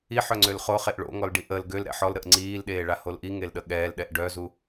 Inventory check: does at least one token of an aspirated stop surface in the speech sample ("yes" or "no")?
no